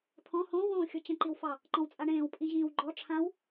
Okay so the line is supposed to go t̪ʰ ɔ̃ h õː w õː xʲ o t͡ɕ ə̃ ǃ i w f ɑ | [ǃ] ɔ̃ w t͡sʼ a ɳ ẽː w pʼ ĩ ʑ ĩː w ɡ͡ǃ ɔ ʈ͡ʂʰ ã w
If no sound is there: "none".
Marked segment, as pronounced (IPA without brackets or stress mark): ǃ